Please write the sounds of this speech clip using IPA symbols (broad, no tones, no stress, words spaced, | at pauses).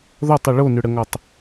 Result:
ðɔtˤʏ ɭonʏɽəŋɔtˤ